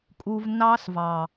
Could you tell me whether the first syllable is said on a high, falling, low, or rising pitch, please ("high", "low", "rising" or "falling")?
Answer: low